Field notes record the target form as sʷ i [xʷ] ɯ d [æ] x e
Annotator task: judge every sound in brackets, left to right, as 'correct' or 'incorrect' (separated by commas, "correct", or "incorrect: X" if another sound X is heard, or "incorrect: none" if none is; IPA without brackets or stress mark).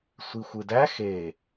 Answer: correct, correct